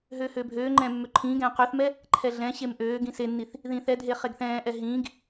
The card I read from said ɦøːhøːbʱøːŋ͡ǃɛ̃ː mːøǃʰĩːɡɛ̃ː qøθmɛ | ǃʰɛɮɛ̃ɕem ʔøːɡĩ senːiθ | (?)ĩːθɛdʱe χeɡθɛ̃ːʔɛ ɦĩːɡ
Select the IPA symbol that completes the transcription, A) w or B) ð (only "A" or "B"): B